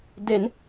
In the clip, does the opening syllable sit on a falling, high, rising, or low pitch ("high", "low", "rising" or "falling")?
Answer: rising